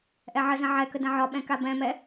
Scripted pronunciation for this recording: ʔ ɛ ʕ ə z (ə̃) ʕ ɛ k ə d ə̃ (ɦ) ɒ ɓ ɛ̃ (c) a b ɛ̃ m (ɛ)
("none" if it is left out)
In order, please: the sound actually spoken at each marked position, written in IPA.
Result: ə̃, ʕ, k, ɛ

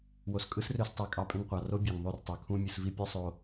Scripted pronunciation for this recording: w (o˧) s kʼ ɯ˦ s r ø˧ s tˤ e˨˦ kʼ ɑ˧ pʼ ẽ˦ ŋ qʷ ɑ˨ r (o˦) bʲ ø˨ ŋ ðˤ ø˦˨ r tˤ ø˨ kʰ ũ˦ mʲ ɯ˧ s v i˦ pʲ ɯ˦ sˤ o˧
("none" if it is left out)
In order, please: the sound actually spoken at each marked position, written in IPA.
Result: o˨, o˦

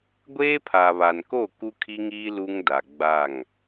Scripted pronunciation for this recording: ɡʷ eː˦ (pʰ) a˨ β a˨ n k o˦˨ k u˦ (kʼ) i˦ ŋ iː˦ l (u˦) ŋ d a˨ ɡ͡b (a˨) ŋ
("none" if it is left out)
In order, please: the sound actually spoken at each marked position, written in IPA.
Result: pʰ, kʰ, u˦, a˦˨

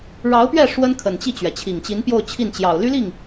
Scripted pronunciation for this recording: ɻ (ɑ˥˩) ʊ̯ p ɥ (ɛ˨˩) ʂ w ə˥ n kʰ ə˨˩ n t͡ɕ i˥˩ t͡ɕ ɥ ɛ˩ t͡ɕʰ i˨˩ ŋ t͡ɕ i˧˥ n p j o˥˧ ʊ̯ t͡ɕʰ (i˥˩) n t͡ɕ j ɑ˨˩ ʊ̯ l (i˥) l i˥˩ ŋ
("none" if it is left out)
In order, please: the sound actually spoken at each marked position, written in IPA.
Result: ɑ˧˥, ɛ˥˩, i˥˩, y˥

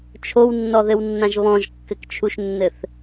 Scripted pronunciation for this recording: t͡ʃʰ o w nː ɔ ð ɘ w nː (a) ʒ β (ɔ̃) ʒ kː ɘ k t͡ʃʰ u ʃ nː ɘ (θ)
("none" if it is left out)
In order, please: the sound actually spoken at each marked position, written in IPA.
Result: ã, ɔ̃, θ

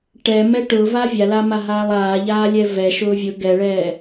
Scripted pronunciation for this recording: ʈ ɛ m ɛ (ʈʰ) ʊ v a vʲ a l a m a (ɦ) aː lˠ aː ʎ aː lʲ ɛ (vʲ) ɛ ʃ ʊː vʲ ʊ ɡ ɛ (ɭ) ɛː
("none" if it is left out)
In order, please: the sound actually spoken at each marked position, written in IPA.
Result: ʈ, ɦ, v, ɭ

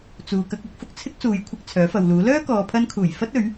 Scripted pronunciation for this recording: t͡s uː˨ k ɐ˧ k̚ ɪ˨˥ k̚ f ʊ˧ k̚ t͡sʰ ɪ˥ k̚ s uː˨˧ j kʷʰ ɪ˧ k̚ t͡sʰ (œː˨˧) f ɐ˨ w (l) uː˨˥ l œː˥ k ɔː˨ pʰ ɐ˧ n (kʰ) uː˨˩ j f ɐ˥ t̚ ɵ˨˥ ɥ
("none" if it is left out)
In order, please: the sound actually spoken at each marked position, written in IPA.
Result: œː˨˥, l, kʰ

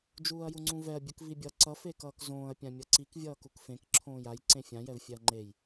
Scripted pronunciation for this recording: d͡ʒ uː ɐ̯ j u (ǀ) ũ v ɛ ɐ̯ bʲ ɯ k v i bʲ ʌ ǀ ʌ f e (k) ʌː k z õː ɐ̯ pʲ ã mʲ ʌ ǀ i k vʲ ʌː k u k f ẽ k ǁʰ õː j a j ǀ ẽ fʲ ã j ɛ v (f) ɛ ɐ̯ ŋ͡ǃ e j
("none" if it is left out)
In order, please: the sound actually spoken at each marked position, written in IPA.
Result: ŋ͡ǀ, k, fʲ

